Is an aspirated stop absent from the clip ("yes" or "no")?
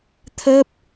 no